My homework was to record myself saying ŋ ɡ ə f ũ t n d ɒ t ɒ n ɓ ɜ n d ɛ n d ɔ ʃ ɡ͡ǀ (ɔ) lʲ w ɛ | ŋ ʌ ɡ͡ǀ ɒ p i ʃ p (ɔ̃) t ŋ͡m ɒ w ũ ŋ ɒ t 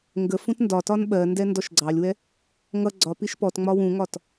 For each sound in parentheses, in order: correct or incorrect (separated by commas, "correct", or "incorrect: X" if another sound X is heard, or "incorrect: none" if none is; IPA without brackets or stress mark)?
incorrect: ɑ, incorrect: ɔ